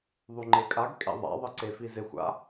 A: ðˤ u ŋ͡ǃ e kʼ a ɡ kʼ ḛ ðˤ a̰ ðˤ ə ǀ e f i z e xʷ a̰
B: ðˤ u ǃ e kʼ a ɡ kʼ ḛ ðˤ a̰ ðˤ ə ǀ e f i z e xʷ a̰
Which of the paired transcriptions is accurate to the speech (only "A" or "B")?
A